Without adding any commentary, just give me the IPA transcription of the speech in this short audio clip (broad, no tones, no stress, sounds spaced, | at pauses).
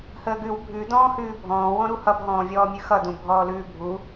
h əː ɡ ʉ w bʱ ʉ d ɔ̃ː h ʉː bʱ ɔ̃ː w ɔ̃ ɾ u h ʌ b ɦ ɔ̃ː vʲ ɔː mʲ ʉ x ʌ d ũ bʱ ɔː l ʉː bʱ u